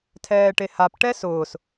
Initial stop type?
aspirated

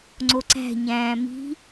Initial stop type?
click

